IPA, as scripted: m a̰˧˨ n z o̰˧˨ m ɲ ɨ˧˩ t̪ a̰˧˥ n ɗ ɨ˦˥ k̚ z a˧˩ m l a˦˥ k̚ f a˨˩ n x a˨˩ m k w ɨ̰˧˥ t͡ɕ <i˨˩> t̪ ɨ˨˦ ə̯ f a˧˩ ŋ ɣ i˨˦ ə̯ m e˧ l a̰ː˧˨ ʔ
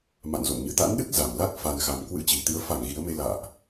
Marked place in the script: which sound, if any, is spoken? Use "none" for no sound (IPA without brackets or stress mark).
i˨˩